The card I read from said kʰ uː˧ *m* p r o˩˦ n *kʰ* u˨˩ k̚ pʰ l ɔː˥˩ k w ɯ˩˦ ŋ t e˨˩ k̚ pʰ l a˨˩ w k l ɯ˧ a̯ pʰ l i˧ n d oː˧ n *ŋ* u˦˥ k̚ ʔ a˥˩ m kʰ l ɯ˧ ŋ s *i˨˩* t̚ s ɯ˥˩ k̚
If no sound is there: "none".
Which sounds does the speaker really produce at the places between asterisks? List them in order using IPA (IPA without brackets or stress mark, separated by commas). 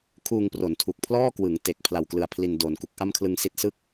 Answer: ŋ, tʰ, k, i˦˥